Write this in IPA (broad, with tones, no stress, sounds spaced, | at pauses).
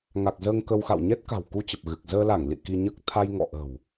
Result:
ŋ a˨˩ k̚ z əː˧ ŋ k ə˧ w x a̰˧˨ w ɲ ɛ˦˥ t̚ k a̤˨˩ w k u˧ t͡ɕ ə˨˩ p̚ ɣ ɨ˨˩ k̚ z əː˧ l a˧˩ ŋ l ḭ˧˨ k i˧ ɲ əː˦˥ k̚ t̪ʰ a˧ j ŋ ɔ̰˧˨ ʔ ə̤˨˩ w